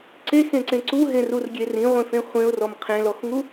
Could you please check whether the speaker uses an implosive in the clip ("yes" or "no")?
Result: no